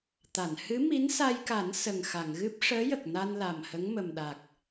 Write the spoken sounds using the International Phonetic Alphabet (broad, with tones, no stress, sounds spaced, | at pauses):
t̪ a˨˩˨ n h ɨ˧˥ m i˧˥ n s a˧ j k a˨˩˦ n s ə˨˩ ŋ x a˨˩˨ ŋ ɣ ɨ˦˥ p̚ ʂ əː˧˥ j ə˨˩ k̚ n a˧ n l a˨˩ m h ə˧˥ ŋ m ə˨˩ m ɗ a˨˩ k̚